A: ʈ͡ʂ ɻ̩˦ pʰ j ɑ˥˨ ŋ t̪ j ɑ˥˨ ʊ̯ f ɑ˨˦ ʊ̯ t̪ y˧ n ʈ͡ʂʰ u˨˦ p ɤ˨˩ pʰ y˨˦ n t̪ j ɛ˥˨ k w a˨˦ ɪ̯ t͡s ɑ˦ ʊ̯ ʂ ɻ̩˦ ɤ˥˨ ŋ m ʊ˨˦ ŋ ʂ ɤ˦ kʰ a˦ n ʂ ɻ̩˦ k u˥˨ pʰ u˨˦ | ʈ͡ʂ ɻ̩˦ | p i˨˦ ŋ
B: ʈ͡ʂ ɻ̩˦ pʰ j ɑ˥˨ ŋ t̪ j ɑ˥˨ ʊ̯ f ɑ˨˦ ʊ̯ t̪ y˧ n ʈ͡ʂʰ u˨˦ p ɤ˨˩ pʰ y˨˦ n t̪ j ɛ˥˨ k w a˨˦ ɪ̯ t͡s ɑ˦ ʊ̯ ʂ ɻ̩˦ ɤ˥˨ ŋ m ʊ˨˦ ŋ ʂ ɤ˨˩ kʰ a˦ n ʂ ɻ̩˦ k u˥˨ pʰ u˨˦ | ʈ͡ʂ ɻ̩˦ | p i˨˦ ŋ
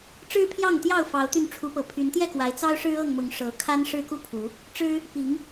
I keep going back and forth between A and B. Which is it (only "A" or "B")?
B